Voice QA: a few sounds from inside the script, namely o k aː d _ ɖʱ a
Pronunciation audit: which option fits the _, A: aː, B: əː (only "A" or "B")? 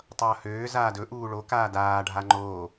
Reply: A